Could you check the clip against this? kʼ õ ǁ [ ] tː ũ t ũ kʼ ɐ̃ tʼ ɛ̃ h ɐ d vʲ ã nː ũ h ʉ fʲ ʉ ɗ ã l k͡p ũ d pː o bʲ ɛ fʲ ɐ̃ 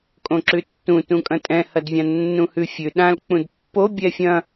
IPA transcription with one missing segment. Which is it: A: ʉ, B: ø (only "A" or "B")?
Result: A